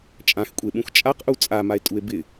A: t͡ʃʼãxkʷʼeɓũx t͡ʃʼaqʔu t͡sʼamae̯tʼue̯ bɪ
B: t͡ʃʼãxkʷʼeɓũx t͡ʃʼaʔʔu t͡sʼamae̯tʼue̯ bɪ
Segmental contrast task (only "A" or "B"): A